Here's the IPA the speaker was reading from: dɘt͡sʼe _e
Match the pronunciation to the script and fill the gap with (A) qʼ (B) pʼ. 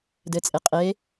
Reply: A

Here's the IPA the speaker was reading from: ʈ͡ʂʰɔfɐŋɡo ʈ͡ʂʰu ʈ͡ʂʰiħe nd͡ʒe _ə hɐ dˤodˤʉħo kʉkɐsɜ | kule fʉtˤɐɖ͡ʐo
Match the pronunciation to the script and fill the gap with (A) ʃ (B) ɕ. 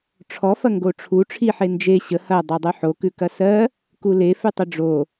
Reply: B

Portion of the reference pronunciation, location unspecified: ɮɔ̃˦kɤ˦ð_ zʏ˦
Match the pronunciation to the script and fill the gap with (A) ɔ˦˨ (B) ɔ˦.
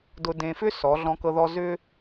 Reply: B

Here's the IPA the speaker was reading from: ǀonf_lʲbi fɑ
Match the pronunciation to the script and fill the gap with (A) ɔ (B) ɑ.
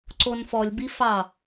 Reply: A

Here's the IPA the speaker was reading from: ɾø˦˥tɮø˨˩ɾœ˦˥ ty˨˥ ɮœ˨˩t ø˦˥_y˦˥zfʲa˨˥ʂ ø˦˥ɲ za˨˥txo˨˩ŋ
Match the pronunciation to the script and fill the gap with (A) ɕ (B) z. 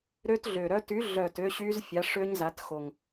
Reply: A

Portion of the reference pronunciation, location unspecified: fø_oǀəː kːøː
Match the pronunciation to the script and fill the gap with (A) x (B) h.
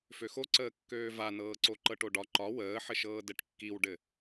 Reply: A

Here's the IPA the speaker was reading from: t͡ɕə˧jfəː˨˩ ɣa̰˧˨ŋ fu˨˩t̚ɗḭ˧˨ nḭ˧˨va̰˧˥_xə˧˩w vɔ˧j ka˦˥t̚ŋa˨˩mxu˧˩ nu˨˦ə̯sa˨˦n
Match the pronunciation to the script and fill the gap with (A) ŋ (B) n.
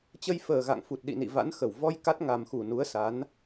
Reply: B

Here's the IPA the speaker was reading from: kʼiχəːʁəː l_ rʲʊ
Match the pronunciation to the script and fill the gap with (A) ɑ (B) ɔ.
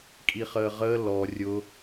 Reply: B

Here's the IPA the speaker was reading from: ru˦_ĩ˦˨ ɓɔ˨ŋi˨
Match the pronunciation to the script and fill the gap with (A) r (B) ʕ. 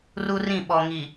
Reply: A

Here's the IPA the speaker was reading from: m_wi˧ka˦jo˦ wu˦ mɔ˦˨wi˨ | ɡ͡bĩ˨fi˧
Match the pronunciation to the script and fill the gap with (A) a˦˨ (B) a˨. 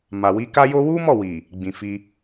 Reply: B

